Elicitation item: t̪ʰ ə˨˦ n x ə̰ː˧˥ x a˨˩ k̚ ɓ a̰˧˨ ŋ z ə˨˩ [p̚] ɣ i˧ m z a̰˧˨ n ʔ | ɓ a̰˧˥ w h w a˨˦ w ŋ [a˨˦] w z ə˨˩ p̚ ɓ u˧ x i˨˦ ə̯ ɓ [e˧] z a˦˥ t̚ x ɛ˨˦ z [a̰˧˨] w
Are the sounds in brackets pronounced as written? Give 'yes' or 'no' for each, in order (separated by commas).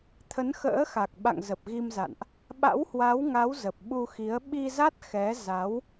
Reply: yes, yes, no, no